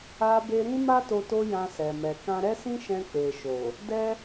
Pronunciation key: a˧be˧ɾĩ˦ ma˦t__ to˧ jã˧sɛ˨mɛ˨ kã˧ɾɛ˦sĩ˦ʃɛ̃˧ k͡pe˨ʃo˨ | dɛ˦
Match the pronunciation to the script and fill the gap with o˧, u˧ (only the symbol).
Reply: o˧